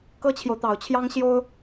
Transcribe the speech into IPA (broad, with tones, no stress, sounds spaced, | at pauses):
k ɤ˥ t͡ɕʰ j o˨ ʊ̯ t̪ ɑ˨˩ ʊ̯ t͡ɕʰ j ɑ˥ ŋ ɕ j o˥ ʊ̯